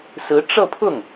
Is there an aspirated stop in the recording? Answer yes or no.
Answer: yes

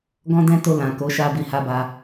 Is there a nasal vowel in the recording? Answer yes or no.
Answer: yes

